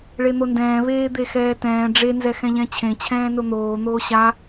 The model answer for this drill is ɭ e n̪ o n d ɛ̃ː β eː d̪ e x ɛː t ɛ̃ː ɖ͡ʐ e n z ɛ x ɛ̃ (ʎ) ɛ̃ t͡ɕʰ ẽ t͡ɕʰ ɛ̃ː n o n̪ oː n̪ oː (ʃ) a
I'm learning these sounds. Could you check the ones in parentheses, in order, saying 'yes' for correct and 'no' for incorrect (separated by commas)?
yes, no